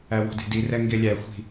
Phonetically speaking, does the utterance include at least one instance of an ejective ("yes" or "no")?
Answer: no